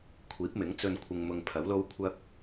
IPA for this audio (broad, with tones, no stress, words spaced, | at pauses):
kʷʰiː˨˥p̚mɪ˨˥ŋ t͡sɵ˥n kʷʰɪ˧ŋmʊ˧ŋpʰɐ˨˥w lo˥wkʷʰɐ˥k̚